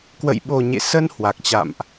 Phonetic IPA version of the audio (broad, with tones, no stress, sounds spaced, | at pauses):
k w ə̰˧˨ j ɓ o˨˩ ɲ ḛ˧˨ s ə˧ n h w a˨˩ k̚ t͡ɕ a̰˧˨ m ʔ